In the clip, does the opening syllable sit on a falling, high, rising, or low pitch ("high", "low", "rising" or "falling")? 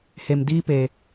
low